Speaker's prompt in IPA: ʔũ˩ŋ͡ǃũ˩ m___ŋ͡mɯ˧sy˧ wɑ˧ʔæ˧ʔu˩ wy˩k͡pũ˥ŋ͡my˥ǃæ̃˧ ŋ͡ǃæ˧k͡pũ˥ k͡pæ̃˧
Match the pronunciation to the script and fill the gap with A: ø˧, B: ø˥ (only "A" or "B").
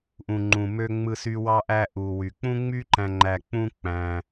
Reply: A